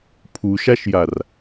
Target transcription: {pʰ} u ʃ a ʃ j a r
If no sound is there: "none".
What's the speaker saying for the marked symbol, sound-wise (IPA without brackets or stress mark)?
pʰ